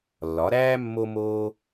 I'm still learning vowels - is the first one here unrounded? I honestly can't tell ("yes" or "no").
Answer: no